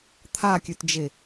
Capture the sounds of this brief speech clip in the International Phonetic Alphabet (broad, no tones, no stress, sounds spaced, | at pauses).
t̪ʰ a kʲ ʉ t d͡ʒ e